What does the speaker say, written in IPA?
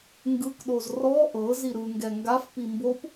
ŋɡɯkɗoz rɔ ʔɤ ziɾɯŋɡɛ ŋɡafpi mbop

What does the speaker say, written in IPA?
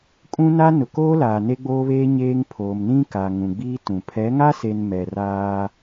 kʼũ˦na˦ nʊ˨koː˦laː˨ ne˦ɡ͡boː˦βeː˦ ɲeː˦ŋ pʰoː˨mnĩ˦ka˨ ŋũ˨ɡ͡biː˦tũ˨ pʰɛ˨˦ŋa˦se˨n mɛ˨raː˦

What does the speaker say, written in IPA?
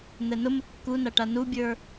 n̪ɛnʊ məkːunaʈa nubʲə˞

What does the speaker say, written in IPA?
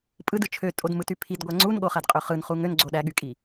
pʼɯdɯ t͡ʃʰøtʼodmɯty pʰidɡʷæ ŋ͡ǀunɠoχædqʼø χɯnχu ŋønɡ͡ǀo ɗæɠykʼi

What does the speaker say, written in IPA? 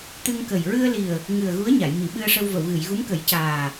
t̪ɨ˧ŋkə˨˩j ɹɨ˧ə̯li˨˩ə̯ | ŋɨ˨˩ə̯ ɣu˧˥ə̯ɲa˨˩˨jmi˨˩˨ ɓɨ˧ə̯ʂə˧wvə˨˩˨wɣɨ˨˩˨j ɣu˧˥mkə˨˩˦jcaː˨˩

